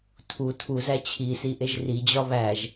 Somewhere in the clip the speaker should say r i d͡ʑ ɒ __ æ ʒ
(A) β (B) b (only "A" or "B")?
A